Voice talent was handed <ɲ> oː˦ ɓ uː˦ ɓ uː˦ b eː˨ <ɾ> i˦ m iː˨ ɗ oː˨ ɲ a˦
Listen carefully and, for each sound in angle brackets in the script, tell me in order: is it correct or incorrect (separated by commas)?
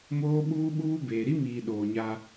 incorrect, correct